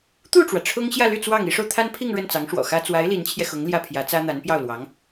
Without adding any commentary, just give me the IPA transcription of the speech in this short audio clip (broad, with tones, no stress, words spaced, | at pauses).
t̪u˥˩ʈ͡ʂwä˩ ʈ͡ʂʰʊ˥ŋ ɕjä˥˧ly˥˧ t͡swɑ˥˩ŋ i˧˥ʂo˧ʊ̯ t̪ʰa˥npʰi˥˧ŋ ɻə˥˩nt͡sɑ˧˥ŋʂwɔ̰˨˩xä˥ t͡swa˧˥ɪ̯ li˧˥nt͡ɕʰjɛ˧xʊ˧˥ŋ ljä˥˩pʰjä˧˥t͡sä˥ n̪a˧˥n pjɑ˥˩ʊ̯lwɑ˧˥ŋ